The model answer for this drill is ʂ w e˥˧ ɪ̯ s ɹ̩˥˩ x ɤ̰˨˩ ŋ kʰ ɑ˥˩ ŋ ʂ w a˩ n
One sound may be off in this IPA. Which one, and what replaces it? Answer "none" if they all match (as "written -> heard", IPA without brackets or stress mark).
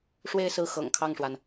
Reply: none